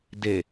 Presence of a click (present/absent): absent